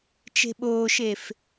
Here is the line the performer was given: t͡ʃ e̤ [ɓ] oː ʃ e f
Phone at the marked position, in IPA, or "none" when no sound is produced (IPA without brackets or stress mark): ɓ